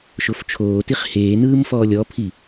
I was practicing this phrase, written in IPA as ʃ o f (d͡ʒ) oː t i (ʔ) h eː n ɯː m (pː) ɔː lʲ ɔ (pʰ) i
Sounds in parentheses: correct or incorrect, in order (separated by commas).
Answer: incorrect, incorrect, incorrect, correct